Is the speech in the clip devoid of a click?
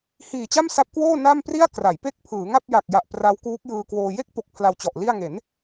yes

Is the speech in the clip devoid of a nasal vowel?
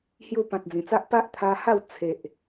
no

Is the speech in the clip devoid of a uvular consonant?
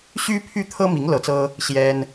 yes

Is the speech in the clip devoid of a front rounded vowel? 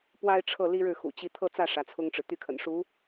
no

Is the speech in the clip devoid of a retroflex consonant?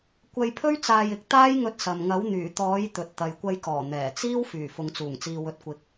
yes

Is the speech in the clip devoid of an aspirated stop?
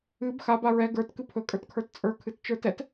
no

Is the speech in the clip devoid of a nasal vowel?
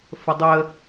yes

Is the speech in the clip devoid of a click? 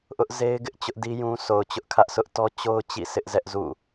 yes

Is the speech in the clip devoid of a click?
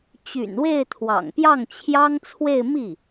yes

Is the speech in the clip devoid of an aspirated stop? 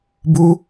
yes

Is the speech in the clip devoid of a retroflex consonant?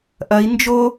yes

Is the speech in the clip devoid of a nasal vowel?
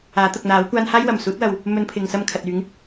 yes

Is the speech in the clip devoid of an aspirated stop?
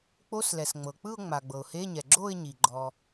yes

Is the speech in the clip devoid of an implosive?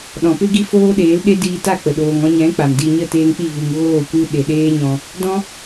no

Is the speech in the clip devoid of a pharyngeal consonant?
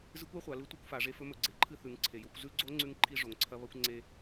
yes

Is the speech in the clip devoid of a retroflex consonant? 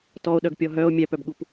yes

